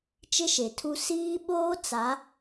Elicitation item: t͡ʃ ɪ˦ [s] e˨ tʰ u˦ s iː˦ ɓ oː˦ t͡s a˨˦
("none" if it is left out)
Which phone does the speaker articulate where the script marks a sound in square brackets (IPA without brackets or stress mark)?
ʃ